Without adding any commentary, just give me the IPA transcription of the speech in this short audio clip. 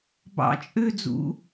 b ɑ̰ t͡ʃʼ ø d͡z ṵ

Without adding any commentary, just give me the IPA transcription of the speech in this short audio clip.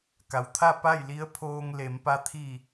k a˩ w t̪ʰ a˥˨ p a˥˨ j l i˧˥ ə̯ pʰ oː˧ ŋ l e˩˧ m p a˧ t̪ʰ i˧˩

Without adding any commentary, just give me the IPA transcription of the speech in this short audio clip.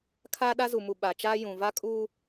kʰ aː˦ ɗ a˦ z u˨ m u˨ ɓ a˨ t͡ʃ aː˦ j ũ˨ v a˦ kʼ uː˦

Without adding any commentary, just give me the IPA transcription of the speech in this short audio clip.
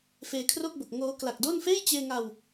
f eː˧ kʰ r o˥˩ k̚ b o˨˩ k̚ ŋ oː˦˥ k l a˨˩ k̚ d o˥˩ n f eː˥˩ j t͡ɕ eː˧ ŋ a˧ w

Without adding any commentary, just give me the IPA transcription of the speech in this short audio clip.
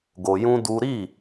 ɡ o˧ j ũ˦ d u˦ ɾ i˦˨

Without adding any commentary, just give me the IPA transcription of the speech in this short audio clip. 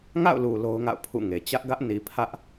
ŋ a̰˦˨ ʊ̯ l u˨ l o˦ ʊ̯ ŋ a̰˦˨ ʊ̯ pʰ ṵ˦˨ ŋ e˨ t͡ɕ ä˦ ʔ ɡ ä˦ ʔ n i˨ pʰ ä˦ ʔ

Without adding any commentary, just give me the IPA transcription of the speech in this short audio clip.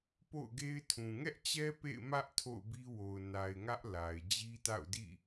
p o̰˦˨ ʊ̯ ɡ e˦ ɪ̯ tʰ ũ˨ ŋ ɛ˦ ʔ t͡ɕ ɛ˦ p ḛ˦˨ ɪ̯ m ä˦ ʔ tʰ o̰˦˨ ʊ̯ b i˦ w o˨ ʊ̯ n a˨ ɪ̯ ŋ ä˦ ʔ l a˨ ɪ̯ d͡ʑ i˦ t a̰˦˨ ʊ̯ d ḭ˦˨

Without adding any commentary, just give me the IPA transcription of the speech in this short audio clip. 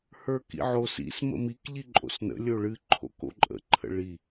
h ə˞ k ḭ ʕ o s ḭ s m ə̰ m i k ʎ i ǃʼ o̰ s n ə̰ lʲ o ɭ ɨ ǃʰ o̰ k o̰ ǃʼ ə̰ ǃʰ ə̰ ɭ i

